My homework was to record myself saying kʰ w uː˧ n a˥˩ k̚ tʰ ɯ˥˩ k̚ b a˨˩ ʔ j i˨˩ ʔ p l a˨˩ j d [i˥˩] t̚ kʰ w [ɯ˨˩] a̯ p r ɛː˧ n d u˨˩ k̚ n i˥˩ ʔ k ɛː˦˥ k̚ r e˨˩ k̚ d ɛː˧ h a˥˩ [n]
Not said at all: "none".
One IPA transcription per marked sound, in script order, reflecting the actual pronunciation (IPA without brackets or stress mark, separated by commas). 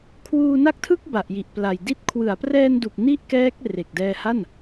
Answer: i˥˩, ɯ˩˦, n